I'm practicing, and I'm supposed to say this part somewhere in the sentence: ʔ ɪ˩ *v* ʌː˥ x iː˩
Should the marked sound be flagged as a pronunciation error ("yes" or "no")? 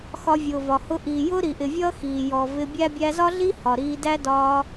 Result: yes